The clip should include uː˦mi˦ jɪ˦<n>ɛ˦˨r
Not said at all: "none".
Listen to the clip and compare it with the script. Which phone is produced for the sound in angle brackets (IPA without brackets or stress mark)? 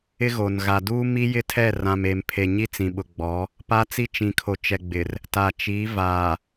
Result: tʰ